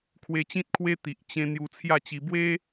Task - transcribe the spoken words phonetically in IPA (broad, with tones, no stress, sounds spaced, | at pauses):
kʰ w e˧ t͡ɕ ĩ˦ t̚ kʰ w e˦ t̪ i˨ ʔ t͡ɕ ẽ˧ n̪ j u˧ t͡sʰ j a˥˧ t͡ɕ i˧ b w e˦